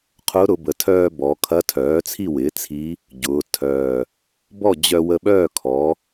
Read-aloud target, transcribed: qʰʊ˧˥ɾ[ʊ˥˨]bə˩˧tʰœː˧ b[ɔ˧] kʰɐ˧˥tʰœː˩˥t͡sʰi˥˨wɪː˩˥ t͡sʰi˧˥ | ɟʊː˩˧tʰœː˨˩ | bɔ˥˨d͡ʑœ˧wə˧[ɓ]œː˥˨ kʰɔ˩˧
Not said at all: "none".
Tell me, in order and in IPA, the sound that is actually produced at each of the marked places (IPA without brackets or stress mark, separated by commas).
ʊ˩˧, ɔ˩˧, ɓ